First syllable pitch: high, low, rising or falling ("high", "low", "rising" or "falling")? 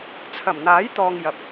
low